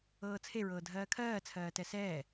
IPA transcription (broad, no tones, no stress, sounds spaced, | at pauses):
ɤː t͡sʰ e ɹ ɤː dʱ ɜː kʰ ɜː t͡sʰ ɜː t ɛ s ɛː